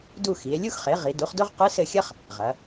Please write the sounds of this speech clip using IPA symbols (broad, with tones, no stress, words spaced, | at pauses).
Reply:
du˦˨xi˩˧e̯lʲu˥xχe˩˥ ʁi˩˧ du˩˥χdo˥ʁ qɨ˧˥sɘ˦˨xʲɐ˥χ | ʁɐ˩˧